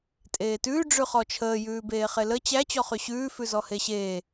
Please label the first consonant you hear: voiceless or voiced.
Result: voiceless